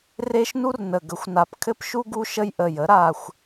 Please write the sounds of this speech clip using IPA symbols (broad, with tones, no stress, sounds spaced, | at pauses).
r e˦ ʃ n u˦ r n ə˨˩ ɡ ə˩˥ xʷ n a˨˩ p kʰ ɘ˦ p ʃ u˦ ɡ u˦ ʃ ə˦ j ʔ ə˨˩ j ə˩˥ ɾ a˦˨ xʷ